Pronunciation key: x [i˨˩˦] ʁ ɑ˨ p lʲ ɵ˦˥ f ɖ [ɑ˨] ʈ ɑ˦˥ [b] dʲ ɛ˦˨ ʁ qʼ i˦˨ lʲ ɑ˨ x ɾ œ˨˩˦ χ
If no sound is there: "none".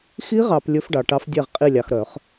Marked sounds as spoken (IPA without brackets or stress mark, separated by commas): i˦˥, ɑ˨, f